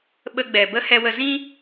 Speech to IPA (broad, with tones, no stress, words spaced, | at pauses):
ɓə˧ɡ͡bɛ˨ bə˦ hɛ˧wə˧ zĩ˦